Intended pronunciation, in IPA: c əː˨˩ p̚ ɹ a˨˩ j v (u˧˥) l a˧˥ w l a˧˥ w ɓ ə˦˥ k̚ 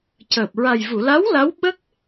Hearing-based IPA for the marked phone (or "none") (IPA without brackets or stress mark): u˨˩˨